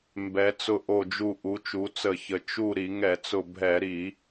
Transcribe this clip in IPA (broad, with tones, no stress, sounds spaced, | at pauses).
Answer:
m b ɛ˩˧ t͡s ʊ˧˩ ʔ o˧˩ d͡ʒ u˧˩ ʔ u˩˧ t͡ʃ u˩˧ t͡s ə˧˩˧ ç ə˩˧ t͡ʃ u˧˩ ɾ i˧˩˧ ŋ ɛ˧˩˧ t͡s ʊ˧˩ bʱ ɛ˧˩˧ ɾ i˧˩˧